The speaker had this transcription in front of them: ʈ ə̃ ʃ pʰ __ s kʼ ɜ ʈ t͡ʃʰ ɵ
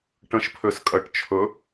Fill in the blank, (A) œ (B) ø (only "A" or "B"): B